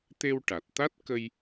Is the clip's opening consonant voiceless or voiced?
voiceless